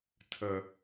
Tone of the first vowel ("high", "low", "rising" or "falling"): low